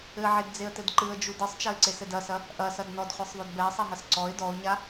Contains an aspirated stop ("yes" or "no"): no